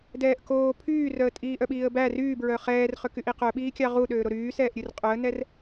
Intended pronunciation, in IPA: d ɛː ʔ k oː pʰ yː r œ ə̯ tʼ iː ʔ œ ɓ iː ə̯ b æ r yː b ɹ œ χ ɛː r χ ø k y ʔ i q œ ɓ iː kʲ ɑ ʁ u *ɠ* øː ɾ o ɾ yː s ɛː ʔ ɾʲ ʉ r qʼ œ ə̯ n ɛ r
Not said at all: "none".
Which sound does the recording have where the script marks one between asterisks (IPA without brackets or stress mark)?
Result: ɗ